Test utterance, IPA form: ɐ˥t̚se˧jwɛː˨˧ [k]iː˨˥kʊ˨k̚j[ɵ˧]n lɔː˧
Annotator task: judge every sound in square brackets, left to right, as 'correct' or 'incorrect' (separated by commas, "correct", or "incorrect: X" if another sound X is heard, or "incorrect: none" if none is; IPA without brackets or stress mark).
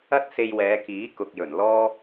correct, incorrect: ɵ˨˩